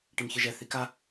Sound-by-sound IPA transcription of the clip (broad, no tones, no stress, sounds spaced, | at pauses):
ʈ i m ç ɯ ʒ ɛ θ i k a